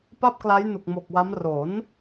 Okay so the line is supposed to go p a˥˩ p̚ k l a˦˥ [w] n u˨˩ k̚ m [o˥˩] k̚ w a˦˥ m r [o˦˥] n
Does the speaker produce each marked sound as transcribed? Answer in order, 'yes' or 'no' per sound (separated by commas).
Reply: no, no, no